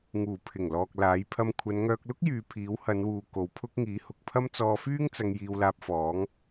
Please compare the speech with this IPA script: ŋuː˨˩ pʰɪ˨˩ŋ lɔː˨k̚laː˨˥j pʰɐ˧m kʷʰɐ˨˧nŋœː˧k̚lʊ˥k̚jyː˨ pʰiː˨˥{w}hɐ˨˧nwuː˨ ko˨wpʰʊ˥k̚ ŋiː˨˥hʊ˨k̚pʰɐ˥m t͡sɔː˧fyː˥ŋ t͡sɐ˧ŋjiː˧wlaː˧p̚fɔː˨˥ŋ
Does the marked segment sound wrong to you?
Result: no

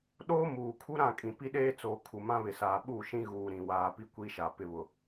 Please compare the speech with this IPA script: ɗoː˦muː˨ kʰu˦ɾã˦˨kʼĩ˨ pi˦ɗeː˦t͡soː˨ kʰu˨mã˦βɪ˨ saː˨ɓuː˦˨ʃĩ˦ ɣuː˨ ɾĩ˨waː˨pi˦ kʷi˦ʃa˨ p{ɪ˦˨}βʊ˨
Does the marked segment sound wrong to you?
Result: no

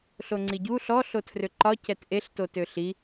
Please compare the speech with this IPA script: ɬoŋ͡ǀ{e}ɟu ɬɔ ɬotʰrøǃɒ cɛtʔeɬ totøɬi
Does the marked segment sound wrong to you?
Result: yes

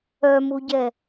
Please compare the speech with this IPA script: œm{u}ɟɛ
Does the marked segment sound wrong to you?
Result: no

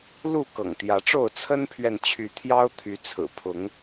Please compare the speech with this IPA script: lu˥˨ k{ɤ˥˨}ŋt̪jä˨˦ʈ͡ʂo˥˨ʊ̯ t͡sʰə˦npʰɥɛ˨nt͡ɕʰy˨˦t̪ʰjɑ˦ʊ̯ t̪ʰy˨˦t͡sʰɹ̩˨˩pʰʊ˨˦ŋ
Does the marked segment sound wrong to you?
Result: yes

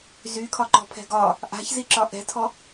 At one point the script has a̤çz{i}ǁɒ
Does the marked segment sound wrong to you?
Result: no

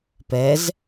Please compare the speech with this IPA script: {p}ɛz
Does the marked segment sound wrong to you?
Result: no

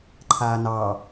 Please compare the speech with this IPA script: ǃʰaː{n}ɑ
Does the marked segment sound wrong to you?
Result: no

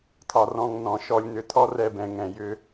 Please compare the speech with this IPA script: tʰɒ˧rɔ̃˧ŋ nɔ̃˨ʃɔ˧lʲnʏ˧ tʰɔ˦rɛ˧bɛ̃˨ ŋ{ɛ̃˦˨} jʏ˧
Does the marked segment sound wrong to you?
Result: yes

